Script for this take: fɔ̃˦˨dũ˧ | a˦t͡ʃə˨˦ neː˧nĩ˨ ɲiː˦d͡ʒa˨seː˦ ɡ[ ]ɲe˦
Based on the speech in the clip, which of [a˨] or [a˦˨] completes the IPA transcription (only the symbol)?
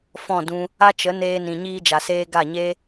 a˦˨